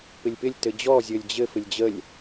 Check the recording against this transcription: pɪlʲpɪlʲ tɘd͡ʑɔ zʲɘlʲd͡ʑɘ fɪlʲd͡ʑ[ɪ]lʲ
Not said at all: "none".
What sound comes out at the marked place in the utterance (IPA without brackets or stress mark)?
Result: ə